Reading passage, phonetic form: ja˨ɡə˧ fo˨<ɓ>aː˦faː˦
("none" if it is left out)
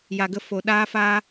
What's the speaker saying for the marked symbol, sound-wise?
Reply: ɗ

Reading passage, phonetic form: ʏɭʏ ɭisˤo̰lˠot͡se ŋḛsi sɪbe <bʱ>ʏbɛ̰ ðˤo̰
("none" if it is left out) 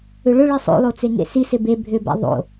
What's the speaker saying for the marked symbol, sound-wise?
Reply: bʱ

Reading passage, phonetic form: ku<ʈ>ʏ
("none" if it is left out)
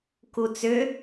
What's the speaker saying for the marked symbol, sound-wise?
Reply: t͡s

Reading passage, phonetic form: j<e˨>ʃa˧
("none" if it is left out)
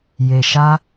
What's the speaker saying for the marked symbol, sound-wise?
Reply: e˨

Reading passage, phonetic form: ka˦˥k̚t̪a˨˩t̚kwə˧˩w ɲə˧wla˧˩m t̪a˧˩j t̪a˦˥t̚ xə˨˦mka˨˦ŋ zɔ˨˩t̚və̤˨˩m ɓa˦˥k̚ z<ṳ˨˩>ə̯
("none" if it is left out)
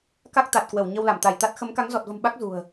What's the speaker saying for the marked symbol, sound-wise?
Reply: ṳ˨˩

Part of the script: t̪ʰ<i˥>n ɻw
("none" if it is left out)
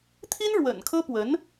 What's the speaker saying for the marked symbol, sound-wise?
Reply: i˥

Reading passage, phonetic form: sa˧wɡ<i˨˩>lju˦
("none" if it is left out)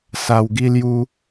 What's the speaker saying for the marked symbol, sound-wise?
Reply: i˦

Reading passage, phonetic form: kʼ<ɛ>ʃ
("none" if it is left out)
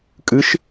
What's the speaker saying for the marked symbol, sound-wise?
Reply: ɨ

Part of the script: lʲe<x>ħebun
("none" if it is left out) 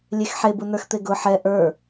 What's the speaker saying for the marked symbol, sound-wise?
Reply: x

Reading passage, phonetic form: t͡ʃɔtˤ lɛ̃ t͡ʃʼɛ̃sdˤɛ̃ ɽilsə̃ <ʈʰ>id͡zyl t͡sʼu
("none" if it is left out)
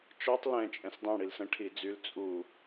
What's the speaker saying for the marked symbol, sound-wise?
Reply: ʈʰ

